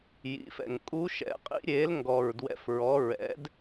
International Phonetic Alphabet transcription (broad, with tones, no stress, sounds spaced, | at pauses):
j ḭ˩˥ f ɛ̰˨˩ ŋ kʼ u˧˥ ʃ ɛ̰˩˥ qʼ ḭ˧˥ ɾʲ eː˩˥ l ŋ ɡ ɔ˨˩ ɹ d w ɛ̰˩˥ f ɹ ɔ˩˥ ɹ ɛ̰˩˥ d